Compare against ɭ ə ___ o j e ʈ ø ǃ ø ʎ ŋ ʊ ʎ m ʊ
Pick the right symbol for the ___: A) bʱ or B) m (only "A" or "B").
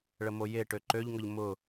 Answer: B